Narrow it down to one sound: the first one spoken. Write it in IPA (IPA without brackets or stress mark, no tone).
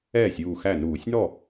ɛː